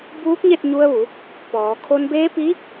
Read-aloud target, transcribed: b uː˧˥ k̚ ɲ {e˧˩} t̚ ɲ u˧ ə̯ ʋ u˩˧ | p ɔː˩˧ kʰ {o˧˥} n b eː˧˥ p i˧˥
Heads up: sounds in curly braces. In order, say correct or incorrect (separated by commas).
incorrect, incorrect